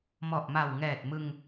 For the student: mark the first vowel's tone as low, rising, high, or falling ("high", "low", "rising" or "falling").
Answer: low